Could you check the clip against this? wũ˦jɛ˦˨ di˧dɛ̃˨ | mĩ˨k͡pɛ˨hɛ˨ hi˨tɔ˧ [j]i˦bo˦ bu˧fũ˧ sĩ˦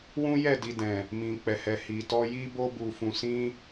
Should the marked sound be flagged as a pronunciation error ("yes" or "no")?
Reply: no